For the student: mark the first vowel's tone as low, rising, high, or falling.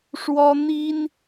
high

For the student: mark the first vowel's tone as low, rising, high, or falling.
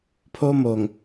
high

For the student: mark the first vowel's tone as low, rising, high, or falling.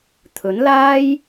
rising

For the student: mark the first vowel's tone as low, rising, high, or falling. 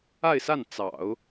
falling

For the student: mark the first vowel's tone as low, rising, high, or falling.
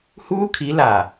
high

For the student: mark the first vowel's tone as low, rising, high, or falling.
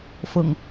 low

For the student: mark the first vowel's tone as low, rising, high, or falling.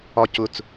high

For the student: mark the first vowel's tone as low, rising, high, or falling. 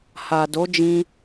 low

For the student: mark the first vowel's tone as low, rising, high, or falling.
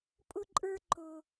high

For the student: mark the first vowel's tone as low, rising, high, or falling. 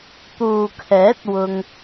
low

